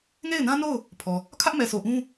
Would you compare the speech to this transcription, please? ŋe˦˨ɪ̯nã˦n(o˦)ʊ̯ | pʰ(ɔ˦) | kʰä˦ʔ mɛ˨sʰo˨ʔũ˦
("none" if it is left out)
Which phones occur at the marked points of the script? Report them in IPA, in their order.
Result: o˦˨, ɔ˨

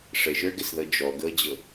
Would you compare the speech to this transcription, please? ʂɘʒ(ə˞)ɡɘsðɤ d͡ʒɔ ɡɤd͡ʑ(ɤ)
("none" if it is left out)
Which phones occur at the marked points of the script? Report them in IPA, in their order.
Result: ə˞, ɤ

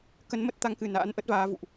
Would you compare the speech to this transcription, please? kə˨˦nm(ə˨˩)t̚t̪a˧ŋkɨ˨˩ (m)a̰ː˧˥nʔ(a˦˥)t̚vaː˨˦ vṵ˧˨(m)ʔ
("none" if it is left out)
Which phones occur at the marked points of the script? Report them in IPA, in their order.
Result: ə˦˥, n, ə˦˥, none

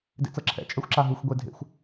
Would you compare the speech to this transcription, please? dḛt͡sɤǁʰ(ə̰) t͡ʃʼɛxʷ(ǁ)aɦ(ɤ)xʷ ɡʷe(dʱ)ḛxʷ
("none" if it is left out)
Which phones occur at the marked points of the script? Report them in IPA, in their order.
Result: ɛ̰, ǁ, ɯ, dʱ

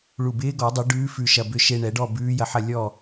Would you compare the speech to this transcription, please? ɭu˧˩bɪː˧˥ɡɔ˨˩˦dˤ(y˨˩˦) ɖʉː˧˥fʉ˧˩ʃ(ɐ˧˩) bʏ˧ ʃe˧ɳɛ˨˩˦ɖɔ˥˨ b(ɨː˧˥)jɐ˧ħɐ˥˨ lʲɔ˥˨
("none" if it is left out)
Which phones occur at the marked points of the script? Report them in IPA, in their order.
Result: u˨˩˦, ɐ˧˩, ʉː˧˥

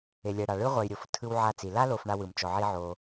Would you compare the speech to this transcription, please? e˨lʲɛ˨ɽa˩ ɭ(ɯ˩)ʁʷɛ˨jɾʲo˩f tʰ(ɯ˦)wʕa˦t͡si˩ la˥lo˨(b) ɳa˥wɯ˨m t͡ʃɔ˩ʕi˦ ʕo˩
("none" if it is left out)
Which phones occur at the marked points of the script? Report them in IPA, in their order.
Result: ɯ˥, ɯ˦, f

